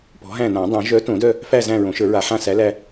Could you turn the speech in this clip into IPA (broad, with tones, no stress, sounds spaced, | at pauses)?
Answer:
p ɔ̤˨˥ ɦ æ̃˦˨ n ã˨˩˦ dˤ œ̃˨˩˦ ʒ œ˨˥ t õ˨˩˦ d œ˦˨ | f æ˦˨ z æ̃˦˨ ɹ õ˨˩˦ ʃ ə˞˨˩˦ ɹ a˨˩˦ ħ ã˦˨ s æ˨˥ l æ˦˨